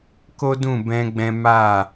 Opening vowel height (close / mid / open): mid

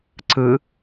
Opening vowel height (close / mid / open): close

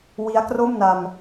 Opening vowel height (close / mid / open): close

